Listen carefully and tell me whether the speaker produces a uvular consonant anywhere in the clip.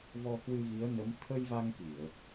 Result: no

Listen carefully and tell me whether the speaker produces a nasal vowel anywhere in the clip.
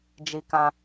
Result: yes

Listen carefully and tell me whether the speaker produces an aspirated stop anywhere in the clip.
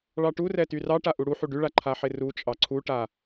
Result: yes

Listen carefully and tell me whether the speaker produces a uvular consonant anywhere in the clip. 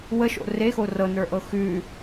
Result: no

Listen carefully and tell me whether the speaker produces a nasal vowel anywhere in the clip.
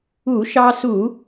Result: no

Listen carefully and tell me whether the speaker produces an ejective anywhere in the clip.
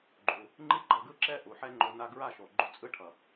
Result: yes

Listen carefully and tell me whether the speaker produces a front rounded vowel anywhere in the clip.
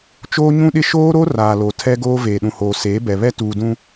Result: no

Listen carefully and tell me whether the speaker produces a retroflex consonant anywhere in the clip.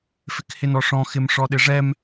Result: yes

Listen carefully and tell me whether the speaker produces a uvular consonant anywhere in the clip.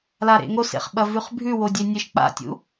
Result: yes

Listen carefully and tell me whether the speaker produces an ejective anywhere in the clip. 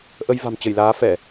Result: no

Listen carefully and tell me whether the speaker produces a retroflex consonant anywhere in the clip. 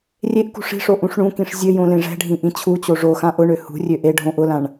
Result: yes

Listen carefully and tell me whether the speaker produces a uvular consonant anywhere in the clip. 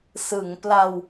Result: no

